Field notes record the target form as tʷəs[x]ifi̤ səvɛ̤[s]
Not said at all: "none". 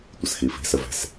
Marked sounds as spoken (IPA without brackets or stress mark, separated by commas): x, s